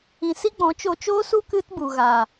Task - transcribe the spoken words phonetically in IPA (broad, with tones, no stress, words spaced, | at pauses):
ĩ˨si˦ɡ͡bɔ̃˨˦ t͡ʃo˧t͡ʃoː˦su˦ kɨ˦tbu˨ ɣa˨